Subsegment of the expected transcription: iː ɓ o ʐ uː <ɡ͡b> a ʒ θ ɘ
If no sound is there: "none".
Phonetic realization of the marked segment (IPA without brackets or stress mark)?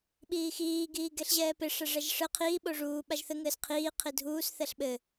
ɓ